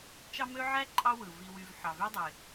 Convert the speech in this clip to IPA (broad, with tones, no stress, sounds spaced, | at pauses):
t͡ʃ ɑ˥ m ø˥ ʕ æ˥ ǃʼ ɑ˦ w ɯ˩ v i˨ w y˨ v ħ ɑ˩ v y˦ dˤ e˩